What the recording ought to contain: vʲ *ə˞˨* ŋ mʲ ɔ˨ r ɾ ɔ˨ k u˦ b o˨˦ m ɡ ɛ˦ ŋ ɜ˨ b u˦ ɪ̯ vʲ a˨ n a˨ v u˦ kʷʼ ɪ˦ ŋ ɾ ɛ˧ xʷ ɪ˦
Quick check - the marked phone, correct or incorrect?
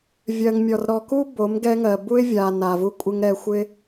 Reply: incorrect